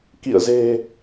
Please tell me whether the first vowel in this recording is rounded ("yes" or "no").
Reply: no